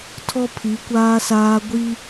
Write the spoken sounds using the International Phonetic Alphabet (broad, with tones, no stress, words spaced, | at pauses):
tʰɔ˦pʰi˨˦kʷaː˦saː˦ ɡʷi˦